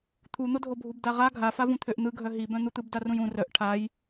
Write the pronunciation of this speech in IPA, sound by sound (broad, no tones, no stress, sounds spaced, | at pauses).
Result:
t̪ʰ u n̪ o dʱ o bʱ u b d a ʁ a ɡʱ a f a v ũ t̪ʰ ø ʔ n̪ ɯ ɡʱ œ ɦ i b œ̃ n̪ u t̪ ɯ b d a r ũ j ũ r œ ʔ ʈʰ a j